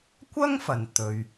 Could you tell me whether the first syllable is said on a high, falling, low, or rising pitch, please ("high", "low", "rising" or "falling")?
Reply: high